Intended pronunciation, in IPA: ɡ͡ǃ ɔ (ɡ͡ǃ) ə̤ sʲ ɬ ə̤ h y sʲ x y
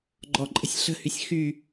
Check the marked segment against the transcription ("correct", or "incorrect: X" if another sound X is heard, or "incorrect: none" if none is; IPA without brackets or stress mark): incorrect: ǃʼ